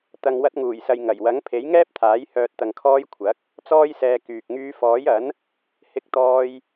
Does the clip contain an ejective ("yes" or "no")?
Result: no